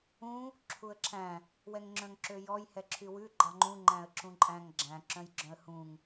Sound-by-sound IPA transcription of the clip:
ũ | ǁʰ u ə̯ ǁʰ æ̃ | w ɛ ŋ ŋ͡ǁ œ̃ ŋ ǁ ø j ɔ j h ɛ ǁʰ y w ʉ ɡ͡ǃ ɑ ŋ͡ǃ ũ ŋ͡ǃ æ̃ ə̯ ǁ ũ ǃʼ æ̃ ŋ ɡ͡ǁ æ̃ ǁ œ̃ j ɡ͡ǁ œ̃ ə̯ h ũ ŋ

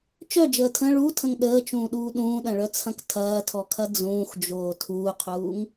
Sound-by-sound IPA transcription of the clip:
t͡ʃ œ d͡ʒ əː tʰ ə̃ ɭ u tʰ ə̃ ŋ ɗ əː t͡ʃ ũː ɗ uː ɗ ũː ɗ ɐ̃ ɭ œ t͡sʰ ɐ̃ k tʰ ɐː tʰ ɔ kʰ ɐ d͡z ũː x d͡ʒ oː tʰ uː qʰ uː ŋ

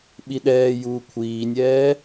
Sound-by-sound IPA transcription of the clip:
ɓ i ɗ ɛː j uː kʷʰ iː nʲ ɛː

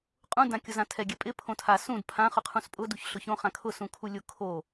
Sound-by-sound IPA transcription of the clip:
qʼ ũ d ã kʲ ʊ z ã tʰ ɛ ɡʲ ɛ pʼ ɪ pʰ õ tʰ a s ũ d pʰ ã χ ʊ qʰ ũ s pʼ ʊ d u ç ɬ ʊ ç õ χ ã kʰ ʊ s ũ kʰ u lʲ ʊ kʰ o

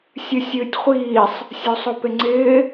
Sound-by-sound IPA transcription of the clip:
sʲ ɨ sʲ ɨː tʲ χʷ iː sˤ | sʲ o sˤ o p e ŋ͡ǀ ɪː

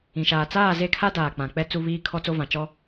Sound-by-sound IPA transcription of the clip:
ĩ˨ ʃ aː˨ t͡s aː˦˨ z e˦˨ kʰ a˦ d aː˨ k͡p ã˨ k͡p ɛ˦ t͡s u˦ β iː˦ kʰ ɔ˦ t͡s o˦ v ã˨ t͡ʃ ɔ˦

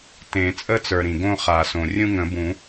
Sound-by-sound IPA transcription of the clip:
t ẽ˨˩˦ t͡sʼ ə˦ t͡s ə˞˩ ɾ ĩ˩ ɡ õ˦ χ a˨˩˦ s õ˩ rʲ ũ˦ ŋ ə̃˨˩˦ b ũ˨˩˦

